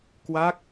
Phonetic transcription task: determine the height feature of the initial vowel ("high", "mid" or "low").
low